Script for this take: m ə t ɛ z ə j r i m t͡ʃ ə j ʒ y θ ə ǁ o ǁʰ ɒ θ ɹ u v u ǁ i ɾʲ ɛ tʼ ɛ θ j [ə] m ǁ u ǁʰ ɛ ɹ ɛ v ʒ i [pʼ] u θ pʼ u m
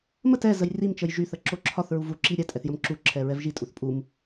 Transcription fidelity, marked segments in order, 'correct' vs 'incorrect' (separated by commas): correct, incorrect